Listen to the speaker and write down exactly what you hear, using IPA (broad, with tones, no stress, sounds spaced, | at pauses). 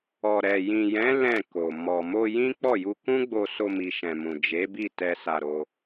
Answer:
ɔ˨ ɾ ɛ˨ j ĩ˨ j ɛ̃˨˦ l ɛ̃˦˨ k o˨ m ɔ˨ m o˧ j ĩ˦ k͡p ɔ˦˨ j u˧ k ũ˦ ɡ͡b o˧ s o˧ m i˨ ʃ ɛ̃˨ m ũ˨ d͡ʒ e˨˦ b i˦˨ t ɛ˧ s a˧ ɾ o˧